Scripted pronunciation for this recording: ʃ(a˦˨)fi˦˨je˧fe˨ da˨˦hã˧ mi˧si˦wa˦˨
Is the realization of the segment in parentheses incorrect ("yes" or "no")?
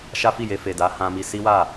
yes